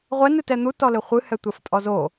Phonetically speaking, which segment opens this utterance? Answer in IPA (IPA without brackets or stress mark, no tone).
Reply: ʁʷ